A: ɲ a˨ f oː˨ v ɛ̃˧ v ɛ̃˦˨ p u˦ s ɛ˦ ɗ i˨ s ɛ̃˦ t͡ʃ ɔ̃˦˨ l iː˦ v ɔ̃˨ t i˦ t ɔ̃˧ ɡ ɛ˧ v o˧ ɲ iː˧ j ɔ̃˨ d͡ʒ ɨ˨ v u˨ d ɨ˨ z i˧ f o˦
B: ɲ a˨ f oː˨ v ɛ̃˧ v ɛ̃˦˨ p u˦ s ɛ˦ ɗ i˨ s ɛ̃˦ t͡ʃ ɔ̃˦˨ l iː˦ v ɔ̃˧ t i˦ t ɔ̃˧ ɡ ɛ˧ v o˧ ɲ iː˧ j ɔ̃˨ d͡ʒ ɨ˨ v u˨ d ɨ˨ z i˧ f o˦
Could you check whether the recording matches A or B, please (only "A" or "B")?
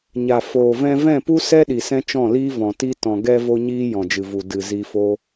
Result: A